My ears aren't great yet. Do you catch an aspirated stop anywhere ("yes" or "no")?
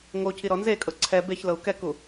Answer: yes